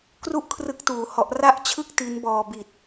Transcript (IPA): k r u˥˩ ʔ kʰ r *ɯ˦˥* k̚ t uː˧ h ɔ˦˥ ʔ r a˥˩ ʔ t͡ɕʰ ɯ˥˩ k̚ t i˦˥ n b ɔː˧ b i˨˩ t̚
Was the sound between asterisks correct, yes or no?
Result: yes